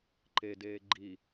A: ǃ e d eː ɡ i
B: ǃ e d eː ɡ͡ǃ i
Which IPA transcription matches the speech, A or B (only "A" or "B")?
B